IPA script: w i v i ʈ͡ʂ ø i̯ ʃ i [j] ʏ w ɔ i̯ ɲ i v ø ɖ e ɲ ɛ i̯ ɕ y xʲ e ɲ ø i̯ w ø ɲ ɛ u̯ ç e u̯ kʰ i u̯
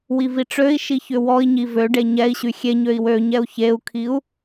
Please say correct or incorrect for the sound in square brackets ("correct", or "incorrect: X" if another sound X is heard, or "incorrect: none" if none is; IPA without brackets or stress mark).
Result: incorrect: ç